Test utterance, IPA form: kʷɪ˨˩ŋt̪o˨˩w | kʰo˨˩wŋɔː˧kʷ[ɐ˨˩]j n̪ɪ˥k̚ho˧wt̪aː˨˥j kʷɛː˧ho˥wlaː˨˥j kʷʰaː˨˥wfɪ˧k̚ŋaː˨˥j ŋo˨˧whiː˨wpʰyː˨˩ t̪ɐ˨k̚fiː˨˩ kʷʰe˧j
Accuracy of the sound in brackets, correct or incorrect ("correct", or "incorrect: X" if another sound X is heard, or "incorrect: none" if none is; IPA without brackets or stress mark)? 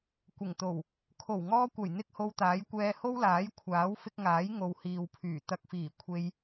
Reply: correct